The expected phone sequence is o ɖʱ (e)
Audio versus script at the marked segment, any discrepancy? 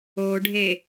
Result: no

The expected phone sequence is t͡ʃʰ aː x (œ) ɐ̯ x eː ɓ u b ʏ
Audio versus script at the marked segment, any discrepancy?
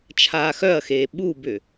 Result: no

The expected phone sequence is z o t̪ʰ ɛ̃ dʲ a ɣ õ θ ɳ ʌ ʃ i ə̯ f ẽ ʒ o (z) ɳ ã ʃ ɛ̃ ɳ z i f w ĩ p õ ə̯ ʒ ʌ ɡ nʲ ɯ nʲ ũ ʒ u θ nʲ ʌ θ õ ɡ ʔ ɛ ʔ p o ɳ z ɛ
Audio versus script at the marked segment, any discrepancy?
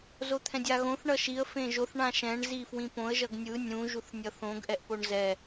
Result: yes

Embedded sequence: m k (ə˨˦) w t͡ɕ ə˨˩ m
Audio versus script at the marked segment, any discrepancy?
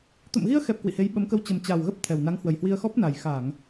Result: yes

